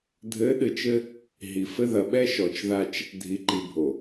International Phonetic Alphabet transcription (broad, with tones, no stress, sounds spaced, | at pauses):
dʱ ɘ˨˦ ɗ ɨ˨ t͡ʃ ɘ˦ | ɦ i˨ f ɘ˦ ð ɐ˨ ɓ ɛ˦ ʃ ɔ˨ t͡ʃ ð a˦ t͡ʃ | dʱ i˨ ǃ i˨ bʱ o˨